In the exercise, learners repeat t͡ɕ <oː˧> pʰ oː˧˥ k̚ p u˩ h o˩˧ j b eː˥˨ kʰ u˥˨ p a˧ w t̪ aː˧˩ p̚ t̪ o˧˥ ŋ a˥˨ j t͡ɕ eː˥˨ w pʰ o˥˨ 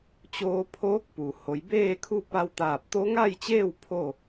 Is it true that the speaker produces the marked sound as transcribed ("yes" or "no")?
yes